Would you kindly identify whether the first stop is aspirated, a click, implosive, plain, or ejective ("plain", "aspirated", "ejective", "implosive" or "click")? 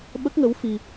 implosive